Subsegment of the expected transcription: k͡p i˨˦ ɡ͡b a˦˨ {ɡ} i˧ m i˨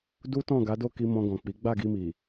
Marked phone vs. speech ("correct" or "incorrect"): correct